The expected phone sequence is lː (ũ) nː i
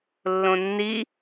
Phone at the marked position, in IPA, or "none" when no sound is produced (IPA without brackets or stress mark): õ